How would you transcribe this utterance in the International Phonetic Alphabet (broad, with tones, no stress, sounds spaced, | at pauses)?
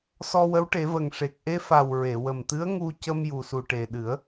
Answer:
s ɔ˧ w ə˧˥ w ʈ e˨˩˦ v ə˨˩ ŋ ʂ e˨˩ k̚ ʔ e˧ f a˨˩ w ɹ e˨˩˨ w ə˨˩ m t̪ ɨ˧˥ ə̯ ŋ u˧ c ə˧ m j u˨˩ s u˨˩ ʈ e˨˩ ɗ ɨ˨˩˦ ə̯